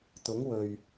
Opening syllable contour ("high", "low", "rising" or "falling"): rising